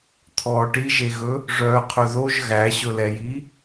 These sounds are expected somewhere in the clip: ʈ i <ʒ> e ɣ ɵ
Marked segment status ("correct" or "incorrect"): correct